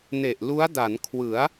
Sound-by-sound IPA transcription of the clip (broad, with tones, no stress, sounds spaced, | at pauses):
n e˨˩ ʔ l u˦˥ a̯ d a˩˦ n kʰ w ɯ˩˦ a̯